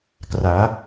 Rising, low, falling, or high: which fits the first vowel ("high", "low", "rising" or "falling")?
rising